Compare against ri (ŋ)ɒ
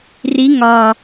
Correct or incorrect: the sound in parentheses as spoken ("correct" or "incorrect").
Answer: correct